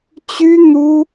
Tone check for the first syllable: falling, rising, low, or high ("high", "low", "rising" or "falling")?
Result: high